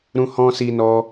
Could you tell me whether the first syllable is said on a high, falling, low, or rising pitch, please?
high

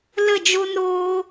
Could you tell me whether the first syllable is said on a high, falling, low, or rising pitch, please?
falling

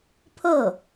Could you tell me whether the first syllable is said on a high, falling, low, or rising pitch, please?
falling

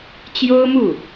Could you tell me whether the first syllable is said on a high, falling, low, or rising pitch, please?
high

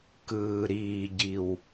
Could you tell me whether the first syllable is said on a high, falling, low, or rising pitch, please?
low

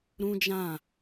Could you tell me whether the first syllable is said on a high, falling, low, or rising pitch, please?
high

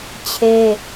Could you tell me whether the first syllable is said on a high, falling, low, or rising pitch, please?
high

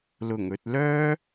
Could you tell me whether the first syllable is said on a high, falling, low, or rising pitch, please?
low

